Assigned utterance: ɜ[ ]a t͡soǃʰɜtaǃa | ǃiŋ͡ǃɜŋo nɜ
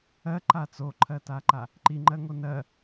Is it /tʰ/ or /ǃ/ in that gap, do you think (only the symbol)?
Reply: ǃ